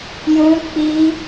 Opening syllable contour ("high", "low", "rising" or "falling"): high